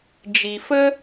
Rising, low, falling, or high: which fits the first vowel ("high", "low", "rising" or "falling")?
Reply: low